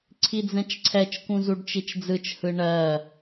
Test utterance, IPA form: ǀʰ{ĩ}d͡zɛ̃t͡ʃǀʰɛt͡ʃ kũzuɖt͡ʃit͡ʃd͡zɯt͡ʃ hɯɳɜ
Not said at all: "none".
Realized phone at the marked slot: i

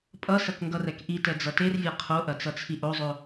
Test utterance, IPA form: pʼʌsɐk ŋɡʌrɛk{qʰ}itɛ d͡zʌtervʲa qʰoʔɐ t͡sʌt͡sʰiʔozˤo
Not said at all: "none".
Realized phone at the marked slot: ʔ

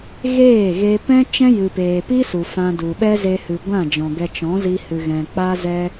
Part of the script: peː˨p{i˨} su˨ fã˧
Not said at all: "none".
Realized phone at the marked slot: i˦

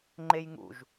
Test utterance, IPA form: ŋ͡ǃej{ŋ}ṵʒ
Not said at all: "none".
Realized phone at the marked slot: ŋ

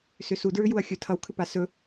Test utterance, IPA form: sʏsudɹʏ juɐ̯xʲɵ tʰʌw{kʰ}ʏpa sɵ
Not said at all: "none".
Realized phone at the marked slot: kʰ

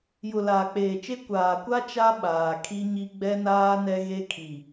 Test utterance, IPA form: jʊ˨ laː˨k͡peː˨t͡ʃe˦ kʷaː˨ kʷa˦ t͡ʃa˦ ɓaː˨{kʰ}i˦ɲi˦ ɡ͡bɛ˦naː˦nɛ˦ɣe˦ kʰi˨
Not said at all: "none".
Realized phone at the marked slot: kʰ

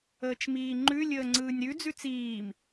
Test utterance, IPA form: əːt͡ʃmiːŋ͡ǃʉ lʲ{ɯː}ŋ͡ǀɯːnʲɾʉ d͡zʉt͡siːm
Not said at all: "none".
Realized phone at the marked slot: əː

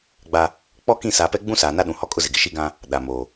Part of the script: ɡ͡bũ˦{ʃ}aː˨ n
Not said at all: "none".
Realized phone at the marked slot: s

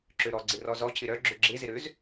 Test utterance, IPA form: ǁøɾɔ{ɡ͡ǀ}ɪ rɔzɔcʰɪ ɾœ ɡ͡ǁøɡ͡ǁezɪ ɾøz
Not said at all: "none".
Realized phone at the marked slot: ɡ͡ǀ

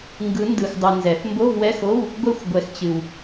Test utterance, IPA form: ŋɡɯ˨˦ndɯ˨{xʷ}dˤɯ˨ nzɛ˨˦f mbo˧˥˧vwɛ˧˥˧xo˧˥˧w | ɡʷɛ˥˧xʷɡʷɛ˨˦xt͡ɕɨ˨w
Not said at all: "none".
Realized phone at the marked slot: x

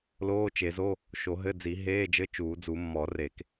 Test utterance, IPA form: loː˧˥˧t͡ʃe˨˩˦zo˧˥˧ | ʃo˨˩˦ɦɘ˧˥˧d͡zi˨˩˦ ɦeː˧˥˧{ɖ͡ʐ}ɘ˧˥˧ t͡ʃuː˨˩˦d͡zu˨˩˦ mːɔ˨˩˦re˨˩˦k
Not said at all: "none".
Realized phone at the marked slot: d͡ʒ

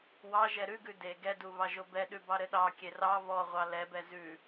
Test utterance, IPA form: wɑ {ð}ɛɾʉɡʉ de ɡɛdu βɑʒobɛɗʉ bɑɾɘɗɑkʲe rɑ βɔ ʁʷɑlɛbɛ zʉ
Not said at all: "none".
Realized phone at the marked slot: ʒ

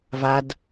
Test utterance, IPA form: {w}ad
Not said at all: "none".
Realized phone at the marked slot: v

